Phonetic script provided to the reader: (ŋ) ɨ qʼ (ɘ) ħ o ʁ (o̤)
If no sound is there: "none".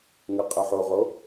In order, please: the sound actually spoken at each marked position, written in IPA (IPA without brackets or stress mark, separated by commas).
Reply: ŋ, ɘ, o